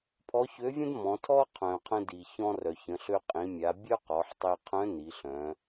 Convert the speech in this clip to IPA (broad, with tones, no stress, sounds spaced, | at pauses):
pʰ ɔ˧˥ ç ø˧˥ vʲ ə̃˥ d m ɔ̃˩˧ tʰ ɔ˥ qʰ œ̃˩ qʰ ə̃˧ d i˩ ç ɔ̃˧ r œ˩ ç ə̃˩˧ ɬ ø˧ qʼ ĩ˩˧ mʲ a˩˧ bʲ œ˥ q ɔ˩˧ ħ tˤ i˧ qʰ œ̃˧˥ n i˩˧ ɬ œ̃˩˧